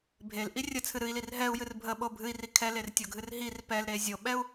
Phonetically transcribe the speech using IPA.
bʱelʔi rʲət͡sʰɨ ɾɨi̯lir ɦɛu̯jɨr bʱəɓo bʱɨi̯ri kʰɛlertʲoɡʱɨr ɦir pɛlɾe zʲoɓɛu̯

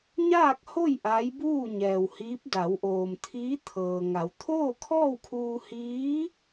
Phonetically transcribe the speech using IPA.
ɲaː˥˨k̚ho˥˨j ʔaː˧˥jbuː˥˨ɲɛː˩whiː˧˥p̚ da˩˧wʔoː˩mt̪ʰiː˧˥ t̪ʰɤː˩ŋa˩˧w t̪ʰoː˥˨kʰɔː˥˨wkʰuː˧ hiː˧˥

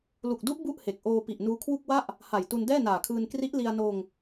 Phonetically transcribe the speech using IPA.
lu˨˩k̚du˦˥ʔ bu˥˩ʔhe˨˩k̚ʔoː˧ pi˨˩ʔnuː˧kʰwu˥˩k̚wa˥˩ʔ | ha˨˩jtu˧n dɛː˥˩naː˨˩kʰɯː˧n kri˦˥ʔli˧a̯noː˧ŋ

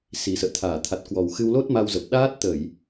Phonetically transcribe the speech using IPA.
si˨˩sə̰ː˧˨t̪ʰaː˧˩ t̪ʰa˨˩t̚kwɔ˨˩wxɨ˧w lo˦˥t̚ma˧wzə˨˩p̚ ɗaː˦˥t̚t̪ə˧˩˨j

